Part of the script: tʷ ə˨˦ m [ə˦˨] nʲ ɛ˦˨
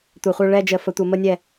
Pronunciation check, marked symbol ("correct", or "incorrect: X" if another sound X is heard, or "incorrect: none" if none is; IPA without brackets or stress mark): incorrect: ə˦